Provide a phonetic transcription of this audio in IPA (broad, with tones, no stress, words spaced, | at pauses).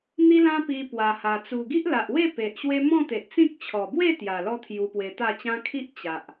n̪i˦lã˦ pi˧pwa˨˩ha˨˩ t͡su˨˩ɡi˦ʔla˨ʔwe˥˧ pe˨ʔɕwe˦ mɔ̃˥˧t̪e˨ʔt͡sĩ˦k̚ t͡ɕʰɔ˨˩bwe˥˧t̪ja˨˩lɔ˧ t̪ʰju˧pwe˧t̪a˥˧t͡ɕã˦ kʰi˦ʔt͡ɕa˨ʔ